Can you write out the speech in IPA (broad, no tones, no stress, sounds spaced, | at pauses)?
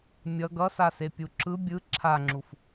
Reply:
mʲ ʌ ɡ ʌ s a s e pʲ u ǁ ɯ bʲ ɯ ǁʰ a ŋ͡ǁ u f